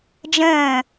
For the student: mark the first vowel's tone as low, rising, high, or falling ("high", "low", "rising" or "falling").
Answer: falling